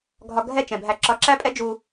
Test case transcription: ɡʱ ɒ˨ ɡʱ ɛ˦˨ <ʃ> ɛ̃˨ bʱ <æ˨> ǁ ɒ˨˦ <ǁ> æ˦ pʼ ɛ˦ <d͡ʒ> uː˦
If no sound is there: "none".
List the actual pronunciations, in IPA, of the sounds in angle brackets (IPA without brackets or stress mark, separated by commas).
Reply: t͡ʃ, æ˨, ǁ, d͡ʒ